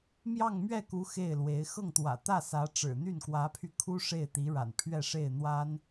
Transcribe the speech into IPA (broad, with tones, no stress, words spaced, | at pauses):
mjɑ˥˧ŋmɥɛ˥˩ku˧˥ xe˥˩ɪ̯lwe˧˥ɪ̯ xɤ˥˩ŋt̪wä̰˨˩t̪ä˥˩sä˧˥ ʈ͡ʂɻ̩˨˩n̪y˥˩n kwä˧˥pʰy˧kʰu˥ ʂe˥˩ɪ̯t̪i˧˥ɻa̰˨˩n pʰɥɛ˥˧ ʂe˥˩ɪ̯n̪wa˥n